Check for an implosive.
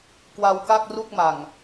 absent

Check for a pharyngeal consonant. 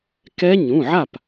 present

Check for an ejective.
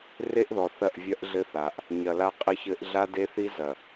present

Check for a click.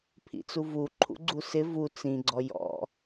present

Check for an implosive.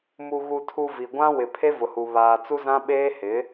present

